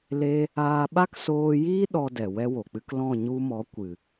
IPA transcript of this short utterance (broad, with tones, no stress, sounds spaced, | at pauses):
l e˦ | aː˧ ɓ a˦ k s oː˧ j iː˦ ɗ ɔ˧ d ɛ˨ w ɛ˦ w o˨ k͡p ɨ˧ k l ɔ̃˦˨ ɲ u˧ m ɔ˨˦ kʷ ɨ˨